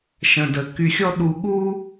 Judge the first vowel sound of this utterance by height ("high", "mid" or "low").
mid